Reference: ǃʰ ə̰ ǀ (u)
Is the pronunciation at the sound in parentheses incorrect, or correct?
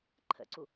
correct